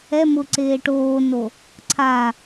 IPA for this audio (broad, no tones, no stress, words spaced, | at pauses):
ɛ mʊ ǀeːʈoːno | ǀʰa